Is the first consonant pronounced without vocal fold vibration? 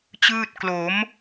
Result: yes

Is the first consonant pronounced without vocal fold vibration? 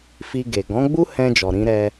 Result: yes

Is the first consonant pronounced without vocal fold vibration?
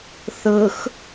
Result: yes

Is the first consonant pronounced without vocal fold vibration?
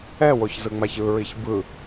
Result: no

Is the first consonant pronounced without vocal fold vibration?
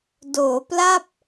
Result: no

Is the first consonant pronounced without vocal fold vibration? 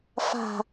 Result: yes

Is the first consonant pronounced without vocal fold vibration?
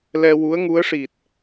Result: no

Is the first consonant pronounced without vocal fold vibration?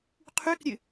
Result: yes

